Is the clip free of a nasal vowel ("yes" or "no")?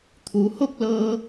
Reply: yes